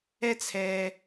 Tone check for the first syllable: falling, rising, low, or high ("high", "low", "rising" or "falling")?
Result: high